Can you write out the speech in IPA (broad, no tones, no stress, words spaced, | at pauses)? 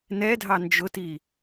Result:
nɛdʱɑ nd͡ʒʊti